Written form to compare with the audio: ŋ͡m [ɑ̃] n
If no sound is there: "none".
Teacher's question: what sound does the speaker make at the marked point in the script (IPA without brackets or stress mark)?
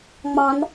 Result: ɑ̃